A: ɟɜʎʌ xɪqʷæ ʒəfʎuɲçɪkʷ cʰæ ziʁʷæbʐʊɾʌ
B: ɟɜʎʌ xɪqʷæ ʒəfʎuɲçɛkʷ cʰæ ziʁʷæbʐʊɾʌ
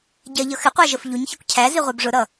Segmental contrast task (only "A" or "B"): B